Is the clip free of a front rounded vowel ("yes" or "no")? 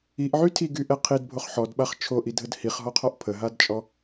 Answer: no